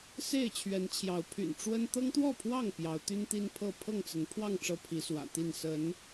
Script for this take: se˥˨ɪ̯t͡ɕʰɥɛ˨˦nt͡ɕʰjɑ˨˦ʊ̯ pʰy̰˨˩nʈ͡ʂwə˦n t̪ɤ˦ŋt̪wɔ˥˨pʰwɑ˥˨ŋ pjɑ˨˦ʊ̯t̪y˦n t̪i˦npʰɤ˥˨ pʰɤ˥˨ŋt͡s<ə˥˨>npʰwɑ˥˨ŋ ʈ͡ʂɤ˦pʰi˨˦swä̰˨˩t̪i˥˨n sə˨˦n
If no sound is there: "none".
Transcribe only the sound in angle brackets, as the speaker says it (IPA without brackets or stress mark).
ə˨˦